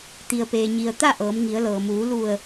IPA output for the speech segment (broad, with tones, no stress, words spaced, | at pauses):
t̪i˩ə̯peː˩ɲi˩ə̯ t̪a˥˨ ʔɤː˩˧mŋi˩˧ə̯lɤː˩ muː˩˧lu˧˩ə̯